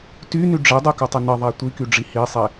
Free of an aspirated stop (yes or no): yes